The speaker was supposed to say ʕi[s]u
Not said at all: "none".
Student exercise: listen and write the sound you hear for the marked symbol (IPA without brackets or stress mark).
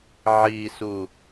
s